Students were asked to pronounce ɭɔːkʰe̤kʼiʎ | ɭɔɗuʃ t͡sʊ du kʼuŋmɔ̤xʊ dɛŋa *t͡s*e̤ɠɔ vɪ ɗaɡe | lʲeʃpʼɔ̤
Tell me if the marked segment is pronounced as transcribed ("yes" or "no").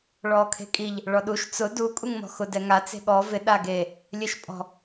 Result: yes